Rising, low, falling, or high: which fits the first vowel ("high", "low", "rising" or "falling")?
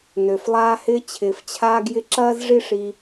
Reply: low